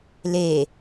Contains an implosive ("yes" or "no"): no